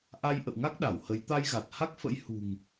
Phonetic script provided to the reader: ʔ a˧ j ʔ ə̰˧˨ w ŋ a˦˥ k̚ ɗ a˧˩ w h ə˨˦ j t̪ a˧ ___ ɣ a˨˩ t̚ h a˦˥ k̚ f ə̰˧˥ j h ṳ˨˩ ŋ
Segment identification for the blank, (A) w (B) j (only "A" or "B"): B